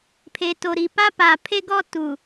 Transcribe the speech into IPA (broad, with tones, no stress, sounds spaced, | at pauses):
pʰ e˨ t o˨ ɾ i˨ p a˦ p a˨ pʰ e˦ ɡ ɔ˦ t u˨